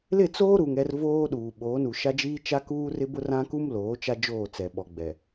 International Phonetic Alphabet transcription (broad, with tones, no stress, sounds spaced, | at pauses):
l ɪ˦˨ t͡s oː˦ ɾ u˨ ŋ ɛ˦ r v oː˦ ɗ uː˨ ɓ oː˨˦ n u˨ ʃ a˦ d͡ʒ iː˦ t͡ʃ a˦ k uː˦ r ɪ˦ b ʊ˦ r ã˦ k u˦ m l oː˨˦ t͡ʃ a˦ d͡ʒ oː˦˨ t͡s ɛ˨ ɓ ɔ˨ ɡ͡b ɛ˨